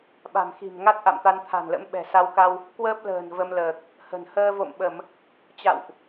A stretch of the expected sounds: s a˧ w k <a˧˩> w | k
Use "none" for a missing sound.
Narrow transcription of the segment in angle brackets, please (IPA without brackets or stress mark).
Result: a˧